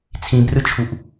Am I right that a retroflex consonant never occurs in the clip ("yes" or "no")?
yes